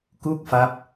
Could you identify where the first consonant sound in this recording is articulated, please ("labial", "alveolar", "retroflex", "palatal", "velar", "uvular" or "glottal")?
velar